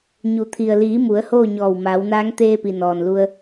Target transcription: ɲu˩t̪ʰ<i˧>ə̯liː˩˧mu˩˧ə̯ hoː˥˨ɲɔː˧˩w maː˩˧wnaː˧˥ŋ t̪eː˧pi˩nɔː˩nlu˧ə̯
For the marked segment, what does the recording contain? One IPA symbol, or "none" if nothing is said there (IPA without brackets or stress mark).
i˩